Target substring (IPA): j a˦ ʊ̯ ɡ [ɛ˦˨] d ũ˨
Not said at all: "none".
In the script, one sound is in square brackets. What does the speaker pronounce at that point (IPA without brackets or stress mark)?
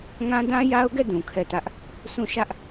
ɛ˦˨